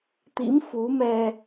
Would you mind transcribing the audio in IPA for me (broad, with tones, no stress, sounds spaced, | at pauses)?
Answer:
t̪ ḭ˧˥ m f u˨˦ m ɛ˧